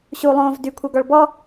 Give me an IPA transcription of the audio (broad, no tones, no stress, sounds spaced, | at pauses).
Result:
ɕ u lˠ õː v d y kʷʰ ɤ ɡ ɔ ɭ b ɔ